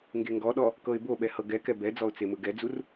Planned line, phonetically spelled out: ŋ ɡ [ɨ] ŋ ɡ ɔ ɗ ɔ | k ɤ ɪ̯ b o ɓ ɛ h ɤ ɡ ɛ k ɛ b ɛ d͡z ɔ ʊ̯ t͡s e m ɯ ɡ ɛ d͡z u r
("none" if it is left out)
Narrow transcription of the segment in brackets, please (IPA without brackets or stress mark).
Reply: e